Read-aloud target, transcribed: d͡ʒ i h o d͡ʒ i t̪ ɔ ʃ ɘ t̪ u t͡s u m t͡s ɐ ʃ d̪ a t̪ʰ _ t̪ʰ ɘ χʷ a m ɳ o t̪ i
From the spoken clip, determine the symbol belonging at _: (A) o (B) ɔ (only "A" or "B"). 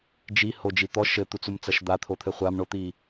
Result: A